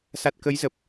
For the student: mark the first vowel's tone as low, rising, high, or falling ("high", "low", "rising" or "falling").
low